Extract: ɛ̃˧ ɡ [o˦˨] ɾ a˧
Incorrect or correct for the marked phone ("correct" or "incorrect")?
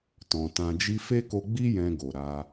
incorrect